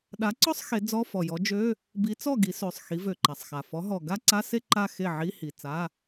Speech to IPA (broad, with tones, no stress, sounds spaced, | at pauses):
ɗ a˨˥ ǀ ɔ˥˧ sˤ x e˨˥ d͡z ɔ˧˥˧ f ɔ˨˩ j ɔ˨˥ d͡ʒ ø˧˥˧ | b i˨˥ t͡s ɔ˥˩ ɡ i˨˥ s ø˨˩ sˤ x i˨˥ v ø˨˩ ǃ a˨˩ sˤ x a˨˩ f ɔ˨˥ ɦ ɔ˨˩ ɡ a˥˧ ǀ a˧˥˧ s e˥˧ ǃ a˥˧ x e˥˩ ʕ i˧˥˧ h i˨˩ t͡s a˧˥˧